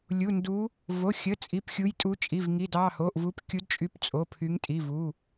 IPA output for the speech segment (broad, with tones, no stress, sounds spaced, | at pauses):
lʲ u˩˧˩ n d u˨˦ | v o˩˧˩ xʲ ə˩˧˩ t͡sʼ i˩˧˩ p xʲ u˨˦ j tʼ u˨˦ t͡ʃʼ i˩˧˩ v ŋ i˩˧˩ d ɑ˩˧˩ h o˩˧˩ ʔ v u˨˦ p kʲ u˨˦ d t͡ʃʼ y˨˦ p t͡sʼ o˩˧˩ pʰ y˨˦ ŋ tʼ i˩˧˩ v u˩˧˩